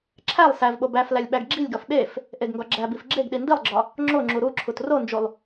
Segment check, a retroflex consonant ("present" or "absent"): absent